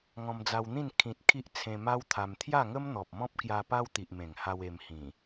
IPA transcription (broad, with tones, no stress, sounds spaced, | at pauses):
ŋ ɔ̃˧ m d͡z a˧ w n̪ ĩ˥˧ n kʰ ĩ˨ t̚ kʰ i˦ ʔ t͡sʰ ẽ˧ m a˦ w t̪ʰ a˧ m t̪ʰ j a˥˧ ŋ ə˦ m n̪ ɔ˨ p̚ m ɔ̃˦ p̚ k j a˧ p a˦ w t̪ i˨ ʔ m ẽ˨˩ ŋ h a˧ w e˧ m h ĩ˨˩